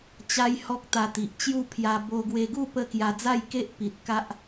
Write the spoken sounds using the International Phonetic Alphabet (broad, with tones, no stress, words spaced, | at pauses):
t͡ɕa˦jhɔ˦k̚ t̪a˧t̪i˨ʔt͡ɕju˥˧ pʰja˧ bo˧ɡwe˧ɡu˥˧ pə˥˧ kja˧d͡za˥˧j ke˦ʔpi˨t̚ ka˦ʔ